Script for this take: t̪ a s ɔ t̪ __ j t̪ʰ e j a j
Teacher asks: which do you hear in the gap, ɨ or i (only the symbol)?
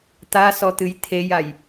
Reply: ɨ